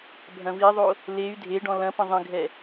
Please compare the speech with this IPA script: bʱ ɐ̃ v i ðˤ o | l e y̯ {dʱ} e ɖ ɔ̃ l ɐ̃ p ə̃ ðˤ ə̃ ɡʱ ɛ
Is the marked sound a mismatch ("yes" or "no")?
no